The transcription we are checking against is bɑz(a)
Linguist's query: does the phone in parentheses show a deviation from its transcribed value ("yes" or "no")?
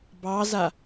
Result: no